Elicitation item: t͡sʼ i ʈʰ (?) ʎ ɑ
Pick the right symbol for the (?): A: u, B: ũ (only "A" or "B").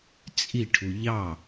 A